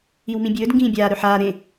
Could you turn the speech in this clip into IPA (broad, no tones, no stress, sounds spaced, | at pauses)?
i w m ĩ bʲ ɵː d ŋ ɡ ĩː bʲ aː ɾ ɵ ħ aː ɾ ẽ